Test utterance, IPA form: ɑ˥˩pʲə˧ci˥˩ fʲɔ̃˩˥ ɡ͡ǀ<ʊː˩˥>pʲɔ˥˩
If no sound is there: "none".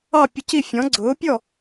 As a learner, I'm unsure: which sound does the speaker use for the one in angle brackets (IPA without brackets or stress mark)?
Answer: ʊː˩˥